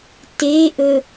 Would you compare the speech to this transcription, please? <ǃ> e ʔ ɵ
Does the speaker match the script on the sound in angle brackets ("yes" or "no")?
no